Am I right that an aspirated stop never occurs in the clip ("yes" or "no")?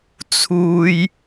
no